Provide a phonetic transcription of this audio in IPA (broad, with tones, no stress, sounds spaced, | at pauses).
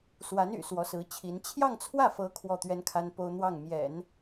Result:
s w a˧˥ n y̰˨˩ s w ɔ˧˥ s ɹ̩˧˥ t͡ɕʰ i˧˥ n t͡ɕʰ j ɑ˥˧ ŋ t͡sʰ w ä˥˩ f ɤ˧˥ kʰ w ɔ˥˩ t̪ ɥ ɛ˥ n kʰ a˥ n p o˥ ʊ̯ n̪ w ɑ˥˩ ŋ m j ɛ̰˨˩˦ n